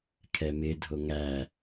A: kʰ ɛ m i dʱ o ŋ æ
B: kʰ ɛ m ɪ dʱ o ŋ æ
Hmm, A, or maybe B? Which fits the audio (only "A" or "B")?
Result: B